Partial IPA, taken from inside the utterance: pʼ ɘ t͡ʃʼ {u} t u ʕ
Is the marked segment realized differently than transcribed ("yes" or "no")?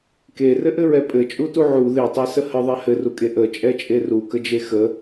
no